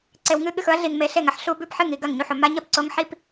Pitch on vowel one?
low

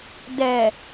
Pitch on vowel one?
low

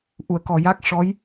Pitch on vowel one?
low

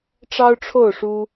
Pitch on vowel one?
high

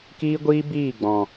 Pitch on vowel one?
high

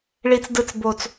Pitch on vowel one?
low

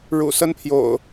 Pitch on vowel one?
low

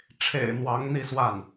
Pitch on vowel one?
low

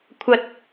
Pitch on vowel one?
high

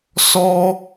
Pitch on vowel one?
high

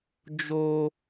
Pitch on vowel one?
high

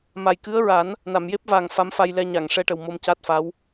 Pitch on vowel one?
low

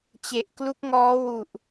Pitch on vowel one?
low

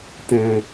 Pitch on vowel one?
low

